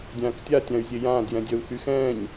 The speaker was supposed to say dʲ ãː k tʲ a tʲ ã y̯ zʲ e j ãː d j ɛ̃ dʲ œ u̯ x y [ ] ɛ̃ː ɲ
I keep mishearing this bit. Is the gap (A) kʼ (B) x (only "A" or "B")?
B